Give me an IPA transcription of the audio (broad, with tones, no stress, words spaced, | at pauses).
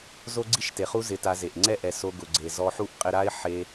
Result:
zo˦ɡ͡ǀi˦ʃte˨χu˦ zɪ˧ta˧ze˨ʔ ŋ͡ǀɛ˦˨ʔɛ˨ so˧ ɡʊ˨ɡ͡ǀe˨ zɔ˧ħu˦ʔqʼɪ˧ɾa˦ɪ̯ ħe˧